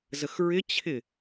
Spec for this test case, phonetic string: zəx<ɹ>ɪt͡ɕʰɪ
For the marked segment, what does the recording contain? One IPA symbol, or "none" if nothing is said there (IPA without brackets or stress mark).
ɹ